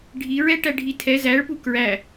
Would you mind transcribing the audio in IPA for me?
ɖʱ i ɹ ɛ ʈ æ ɖʱ i tʰ ɛ z æ ɭ p u k ɹ æ

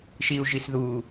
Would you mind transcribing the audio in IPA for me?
ʃ i u̯ ʒ i s ð uː

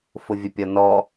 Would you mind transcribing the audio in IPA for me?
f ʊ vʲ ə pʲ ɒ n ɔ

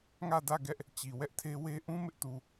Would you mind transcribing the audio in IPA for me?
ŋ ä˦˨ d ä˦˨ ɡ ɛ˦ ʔ | t͡ɕ i˨ w ɛ˦ ʔ tʰ e˦ w e˦ ʔ ũ˦ m ɪ˦ ʔ t u˨

